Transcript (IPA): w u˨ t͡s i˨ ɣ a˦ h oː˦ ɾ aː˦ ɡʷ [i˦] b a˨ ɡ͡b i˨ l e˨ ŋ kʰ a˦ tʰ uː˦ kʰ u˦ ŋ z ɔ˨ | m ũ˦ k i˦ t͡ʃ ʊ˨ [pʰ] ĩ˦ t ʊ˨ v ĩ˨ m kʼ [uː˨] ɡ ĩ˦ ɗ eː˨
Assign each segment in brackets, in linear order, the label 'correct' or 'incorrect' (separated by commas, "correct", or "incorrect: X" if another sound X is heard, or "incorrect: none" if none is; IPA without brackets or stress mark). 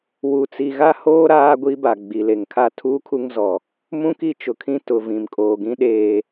correct, incorrect: kʰ, incorrect: oː˨